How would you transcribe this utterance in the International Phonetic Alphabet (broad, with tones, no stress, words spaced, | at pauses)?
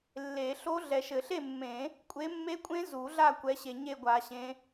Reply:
lːe˨˩˦ɬo˦˥ ɮɛ˨ʃɘ˨˩˦ɬe˥˨mːẽ˨˩˦ | kʷʼe˨˦mːe˦˥kʷʼẽ˦˥ zu˨˩˦ɮa˥˨kʷɛ˨˦ɕe˨ ɲe˥˨ɡʷa˨˩˦ɕẽ˨˦